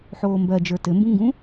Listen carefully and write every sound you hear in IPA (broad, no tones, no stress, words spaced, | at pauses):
ħoːmbɜd͡ʒə˞ tɘmbũŋɡũ